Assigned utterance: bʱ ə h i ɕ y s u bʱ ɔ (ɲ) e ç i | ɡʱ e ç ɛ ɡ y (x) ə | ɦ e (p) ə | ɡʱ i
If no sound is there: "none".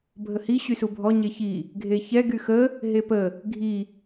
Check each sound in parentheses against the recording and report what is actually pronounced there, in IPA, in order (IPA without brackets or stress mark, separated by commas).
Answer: ɲ, x, p